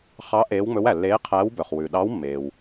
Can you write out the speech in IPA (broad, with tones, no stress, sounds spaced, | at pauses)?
χ ɑ˧˥ ʔ eː˧˥ w ŋ͡m ɵ˧˥ w æ˩ lː eː˧˥ qʰ æː˧˥ w b œ˩ χ w ʉ˩ ɗ ɑ˧˥ w mː eː˩ w